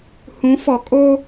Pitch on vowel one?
rising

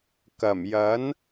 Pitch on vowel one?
low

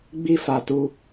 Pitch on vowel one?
high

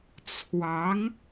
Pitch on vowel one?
rising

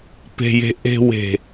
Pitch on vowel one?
low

